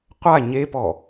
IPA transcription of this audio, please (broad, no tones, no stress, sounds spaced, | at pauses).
qʷ a ɲ e p ɔ